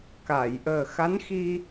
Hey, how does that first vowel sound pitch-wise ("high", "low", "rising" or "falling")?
low